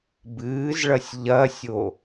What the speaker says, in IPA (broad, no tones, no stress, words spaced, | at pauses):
bɨːzɭɐsʲ ʎɐsʲo